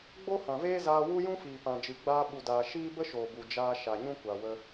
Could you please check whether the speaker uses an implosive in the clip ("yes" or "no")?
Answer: yes